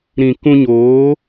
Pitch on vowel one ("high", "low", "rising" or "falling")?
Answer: low